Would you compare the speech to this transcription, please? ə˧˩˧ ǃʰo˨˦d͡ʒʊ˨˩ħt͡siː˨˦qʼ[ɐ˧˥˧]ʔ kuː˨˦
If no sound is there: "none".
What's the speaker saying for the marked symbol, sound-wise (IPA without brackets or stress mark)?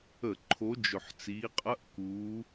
ɐ˧˥˧